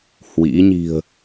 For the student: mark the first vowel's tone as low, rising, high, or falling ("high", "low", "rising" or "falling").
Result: rising